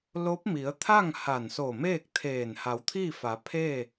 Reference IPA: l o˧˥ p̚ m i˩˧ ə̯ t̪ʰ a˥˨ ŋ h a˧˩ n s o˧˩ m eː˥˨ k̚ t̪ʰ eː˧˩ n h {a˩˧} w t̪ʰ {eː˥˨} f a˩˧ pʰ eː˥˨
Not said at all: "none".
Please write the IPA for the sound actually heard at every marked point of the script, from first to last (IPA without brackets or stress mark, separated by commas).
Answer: a˩˧, iː˥˨